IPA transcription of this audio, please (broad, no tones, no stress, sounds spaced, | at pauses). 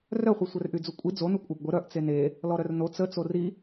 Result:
r œ χʷ i sʷ œ r ʔ y d͡z u kʷʼ i d͡z o n u kʷʼ a b ɡʷ ə ɾ œ ʔ t͡s e n e | l ɔ ɾ œ r n o t͡s ə t͡s o r i